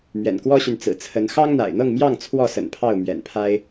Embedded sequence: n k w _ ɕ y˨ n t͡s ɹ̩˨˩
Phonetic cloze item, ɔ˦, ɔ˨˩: ɔ˦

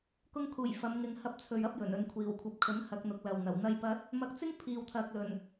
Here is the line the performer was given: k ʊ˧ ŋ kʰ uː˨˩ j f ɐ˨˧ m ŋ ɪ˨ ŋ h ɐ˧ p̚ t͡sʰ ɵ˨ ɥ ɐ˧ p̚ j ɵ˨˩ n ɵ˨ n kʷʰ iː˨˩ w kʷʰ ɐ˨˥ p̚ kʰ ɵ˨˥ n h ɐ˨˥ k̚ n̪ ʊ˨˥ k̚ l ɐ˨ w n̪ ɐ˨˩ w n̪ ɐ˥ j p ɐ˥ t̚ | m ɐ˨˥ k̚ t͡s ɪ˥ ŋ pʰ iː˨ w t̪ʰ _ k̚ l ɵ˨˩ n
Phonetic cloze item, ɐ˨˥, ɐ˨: ɐ˨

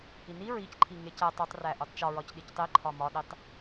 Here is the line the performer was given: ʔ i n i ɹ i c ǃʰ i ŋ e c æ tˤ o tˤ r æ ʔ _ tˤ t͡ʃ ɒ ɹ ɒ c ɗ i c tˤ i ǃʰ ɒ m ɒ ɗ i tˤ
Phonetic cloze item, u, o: u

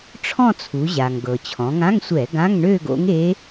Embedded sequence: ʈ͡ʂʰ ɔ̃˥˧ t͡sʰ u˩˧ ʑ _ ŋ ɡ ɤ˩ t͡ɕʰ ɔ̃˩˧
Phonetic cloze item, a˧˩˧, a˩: a˩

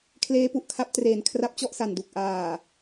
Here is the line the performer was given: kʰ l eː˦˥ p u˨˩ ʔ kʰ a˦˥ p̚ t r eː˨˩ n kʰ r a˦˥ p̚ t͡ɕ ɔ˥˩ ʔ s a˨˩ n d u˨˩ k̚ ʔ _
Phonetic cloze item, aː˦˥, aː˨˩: aː˨˩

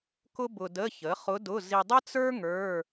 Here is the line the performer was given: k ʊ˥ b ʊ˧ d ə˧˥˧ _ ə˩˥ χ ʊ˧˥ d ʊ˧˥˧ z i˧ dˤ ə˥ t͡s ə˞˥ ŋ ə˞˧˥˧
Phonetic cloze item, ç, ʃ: ç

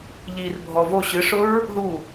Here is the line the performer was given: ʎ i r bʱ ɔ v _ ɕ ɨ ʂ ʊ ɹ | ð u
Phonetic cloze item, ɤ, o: o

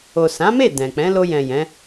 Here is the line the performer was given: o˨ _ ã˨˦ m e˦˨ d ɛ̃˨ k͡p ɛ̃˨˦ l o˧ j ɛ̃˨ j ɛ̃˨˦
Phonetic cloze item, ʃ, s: s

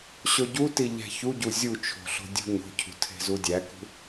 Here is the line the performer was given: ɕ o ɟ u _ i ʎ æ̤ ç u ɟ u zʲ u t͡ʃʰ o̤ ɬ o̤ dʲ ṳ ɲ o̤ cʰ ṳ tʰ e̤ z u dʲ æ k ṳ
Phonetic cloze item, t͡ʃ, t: t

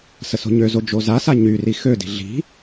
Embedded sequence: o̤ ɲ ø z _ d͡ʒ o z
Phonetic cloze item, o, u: o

